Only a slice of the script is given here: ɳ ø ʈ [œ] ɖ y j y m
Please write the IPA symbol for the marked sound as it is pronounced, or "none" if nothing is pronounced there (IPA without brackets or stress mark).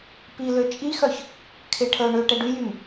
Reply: ɛ